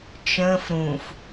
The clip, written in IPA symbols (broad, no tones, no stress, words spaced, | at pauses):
t͡ʃə̃ːf ɾũf